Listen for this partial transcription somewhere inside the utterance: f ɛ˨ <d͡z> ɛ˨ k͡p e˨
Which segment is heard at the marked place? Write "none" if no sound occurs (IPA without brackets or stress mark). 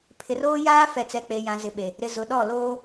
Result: t͡s